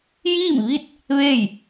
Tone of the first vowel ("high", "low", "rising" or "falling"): falling